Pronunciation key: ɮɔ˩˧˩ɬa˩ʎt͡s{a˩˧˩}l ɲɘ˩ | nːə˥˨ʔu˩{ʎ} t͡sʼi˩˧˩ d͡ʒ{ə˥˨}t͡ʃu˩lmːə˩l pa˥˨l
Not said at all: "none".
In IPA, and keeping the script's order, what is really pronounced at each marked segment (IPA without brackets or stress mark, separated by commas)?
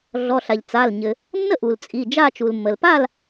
a˩˧˩, l, a˥˨